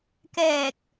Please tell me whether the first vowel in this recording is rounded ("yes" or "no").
no